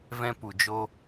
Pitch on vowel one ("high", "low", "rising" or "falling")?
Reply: high